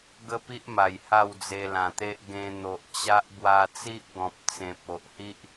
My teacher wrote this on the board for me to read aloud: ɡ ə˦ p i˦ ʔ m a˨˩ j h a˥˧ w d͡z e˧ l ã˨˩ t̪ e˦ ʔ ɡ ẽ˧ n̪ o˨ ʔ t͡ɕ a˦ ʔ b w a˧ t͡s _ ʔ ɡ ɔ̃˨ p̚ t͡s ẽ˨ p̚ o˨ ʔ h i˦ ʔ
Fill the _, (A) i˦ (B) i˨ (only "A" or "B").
A